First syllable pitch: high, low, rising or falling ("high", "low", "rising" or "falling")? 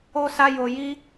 high